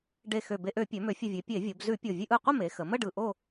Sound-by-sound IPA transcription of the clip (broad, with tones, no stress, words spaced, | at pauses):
ɖe˨˩ xø˨˩be˧˩˧ʔø˧˩˧pʲø˩˧ mø˩˧fʲə˨˩vʲe˩˧ pʲe˧˩˧vʲo˩˧b zʉ˧˩˧pʲo˨˩ vʲʉ˧ʔɯ˨˩qʷə˥˧me˩˧ xə˩˧ mə˥˧ɖɯ˨˩ ʔo˥˧